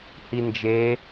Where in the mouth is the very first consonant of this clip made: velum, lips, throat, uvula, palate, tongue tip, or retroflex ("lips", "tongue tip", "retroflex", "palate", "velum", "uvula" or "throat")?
throat